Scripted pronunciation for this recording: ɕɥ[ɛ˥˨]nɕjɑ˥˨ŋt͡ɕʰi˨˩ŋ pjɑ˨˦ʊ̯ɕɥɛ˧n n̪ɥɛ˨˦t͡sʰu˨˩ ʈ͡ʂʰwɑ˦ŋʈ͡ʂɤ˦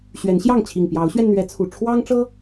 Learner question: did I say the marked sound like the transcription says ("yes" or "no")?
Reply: no